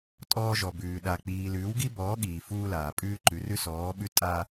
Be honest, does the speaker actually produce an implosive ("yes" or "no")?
yes